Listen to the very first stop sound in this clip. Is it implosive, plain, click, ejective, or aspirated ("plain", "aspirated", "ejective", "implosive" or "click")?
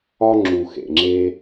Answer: click